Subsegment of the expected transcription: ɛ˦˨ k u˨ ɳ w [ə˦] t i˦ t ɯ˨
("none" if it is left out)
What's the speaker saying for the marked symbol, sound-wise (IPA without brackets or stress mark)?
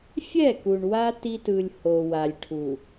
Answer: a˦